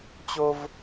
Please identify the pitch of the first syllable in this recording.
high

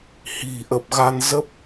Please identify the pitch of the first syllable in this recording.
low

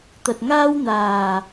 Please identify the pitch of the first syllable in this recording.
low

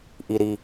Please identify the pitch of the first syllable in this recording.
low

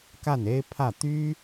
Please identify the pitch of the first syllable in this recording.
falling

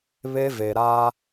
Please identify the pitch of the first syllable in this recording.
high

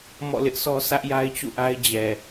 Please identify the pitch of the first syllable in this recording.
falling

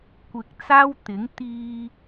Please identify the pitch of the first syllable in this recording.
low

